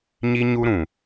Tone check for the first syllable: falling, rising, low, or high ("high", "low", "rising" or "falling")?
high